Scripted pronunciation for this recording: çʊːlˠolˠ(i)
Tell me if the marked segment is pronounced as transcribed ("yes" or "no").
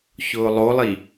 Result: yes